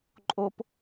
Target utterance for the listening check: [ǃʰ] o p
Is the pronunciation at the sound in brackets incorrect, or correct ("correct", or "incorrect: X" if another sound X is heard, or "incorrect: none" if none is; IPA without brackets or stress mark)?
incorrect: ǃʼ